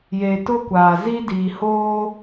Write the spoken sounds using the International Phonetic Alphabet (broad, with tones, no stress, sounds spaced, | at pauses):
j e˨ t ʊ˦ kʷ aː˨ z i˦ d iː˨ h oː˦